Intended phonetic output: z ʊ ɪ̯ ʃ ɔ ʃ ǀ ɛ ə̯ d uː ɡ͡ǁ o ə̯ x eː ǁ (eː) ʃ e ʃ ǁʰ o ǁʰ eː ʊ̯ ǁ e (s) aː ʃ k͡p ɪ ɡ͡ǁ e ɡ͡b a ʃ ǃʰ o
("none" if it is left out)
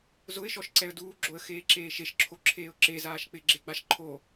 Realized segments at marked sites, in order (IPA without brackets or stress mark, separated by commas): eː, z